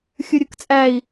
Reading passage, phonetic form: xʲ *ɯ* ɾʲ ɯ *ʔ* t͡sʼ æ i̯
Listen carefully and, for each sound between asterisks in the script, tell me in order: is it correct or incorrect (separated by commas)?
correct, incorrect